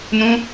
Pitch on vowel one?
high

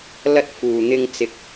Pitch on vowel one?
high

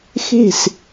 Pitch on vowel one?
falling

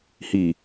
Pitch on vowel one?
low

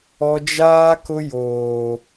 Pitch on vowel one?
high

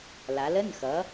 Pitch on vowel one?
rising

